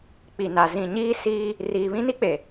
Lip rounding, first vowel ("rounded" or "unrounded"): unrounded